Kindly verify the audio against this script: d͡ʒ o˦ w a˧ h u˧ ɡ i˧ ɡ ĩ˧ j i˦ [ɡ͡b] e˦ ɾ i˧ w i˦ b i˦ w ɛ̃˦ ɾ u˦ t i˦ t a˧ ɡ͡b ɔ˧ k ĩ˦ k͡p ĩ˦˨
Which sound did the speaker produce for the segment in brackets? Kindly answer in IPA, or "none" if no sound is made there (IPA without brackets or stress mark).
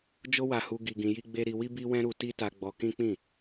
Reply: ɡ͡b